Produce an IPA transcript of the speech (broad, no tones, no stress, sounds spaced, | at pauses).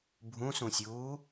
bʱ ũ s ũ sʲ uː